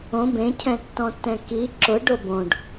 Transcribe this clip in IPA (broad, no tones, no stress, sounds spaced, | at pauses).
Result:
õ b ẽ cʰ ɛ̃ tː ɔ̃ tː ɛ̃ k i ǁ ʊ ɖ o b õ ɖ